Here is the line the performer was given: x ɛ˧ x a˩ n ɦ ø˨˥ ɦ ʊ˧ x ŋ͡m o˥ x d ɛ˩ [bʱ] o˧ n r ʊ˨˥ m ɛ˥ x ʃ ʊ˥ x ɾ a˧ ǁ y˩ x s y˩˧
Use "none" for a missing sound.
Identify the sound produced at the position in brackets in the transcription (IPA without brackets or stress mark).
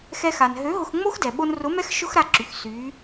ɓ